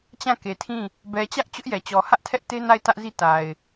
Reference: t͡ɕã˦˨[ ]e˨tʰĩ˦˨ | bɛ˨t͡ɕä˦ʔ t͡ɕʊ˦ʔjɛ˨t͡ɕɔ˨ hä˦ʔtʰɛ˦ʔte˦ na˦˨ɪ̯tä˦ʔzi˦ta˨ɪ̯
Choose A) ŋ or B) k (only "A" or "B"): B